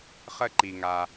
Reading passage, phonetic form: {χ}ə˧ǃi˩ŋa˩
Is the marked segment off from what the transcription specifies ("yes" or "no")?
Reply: no